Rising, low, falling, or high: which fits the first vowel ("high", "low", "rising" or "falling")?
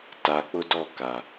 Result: low